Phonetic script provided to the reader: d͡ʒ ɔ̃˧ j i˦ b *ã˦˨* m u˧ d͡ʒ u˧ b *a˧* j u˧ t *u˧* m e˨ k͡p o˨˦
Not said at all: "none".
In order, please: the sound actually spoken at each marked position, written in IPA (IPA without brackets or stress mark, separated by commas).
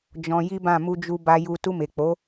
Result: ã˦˨, a˧, u˧